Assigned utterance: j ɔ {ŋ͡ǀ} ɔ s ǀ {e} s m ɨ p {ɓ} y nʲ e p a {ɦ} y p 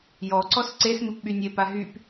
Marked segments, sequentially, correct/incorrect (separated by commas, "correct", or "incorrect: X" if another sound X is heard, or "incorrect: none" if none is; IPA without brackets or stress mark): incorrect: ǀ, correct, correct, correct